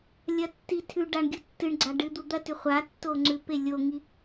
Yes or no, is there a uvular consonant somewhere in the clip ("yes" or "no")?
yes